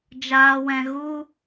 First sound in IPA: d͡ʒ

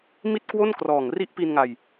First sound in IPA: m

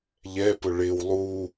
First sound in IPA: ʎ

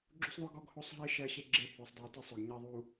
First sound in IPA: ɡ͡ǁ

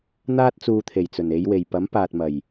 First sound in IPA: n̪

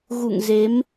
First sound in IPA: ɣ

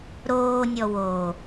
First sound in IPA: ɾ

